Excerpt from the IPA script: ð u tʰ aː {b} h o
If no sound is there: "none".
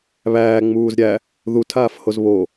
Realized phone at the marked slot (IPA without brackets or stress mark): f